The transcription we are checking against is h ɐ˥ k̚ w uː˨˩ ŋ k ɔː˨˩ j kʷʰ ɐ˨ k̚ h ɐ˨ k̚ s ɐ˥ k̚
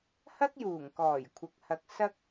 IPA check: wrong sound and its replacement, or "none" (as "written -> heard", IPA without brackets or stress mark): w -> j